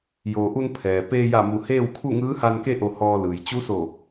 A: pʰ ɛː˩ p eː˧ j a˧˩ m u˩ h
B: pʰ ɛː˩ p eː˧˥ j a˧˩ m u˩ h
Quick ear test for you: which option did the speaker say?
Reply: A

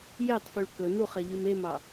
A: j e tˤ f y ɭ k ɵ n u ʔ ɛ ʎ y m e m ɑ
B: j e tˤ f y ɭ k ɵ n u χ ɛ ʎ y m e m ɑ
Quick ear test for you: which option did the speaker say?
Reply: B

